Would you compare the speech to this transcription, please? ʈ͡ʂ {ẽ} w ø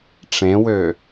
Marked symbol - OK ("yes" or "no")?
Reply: yes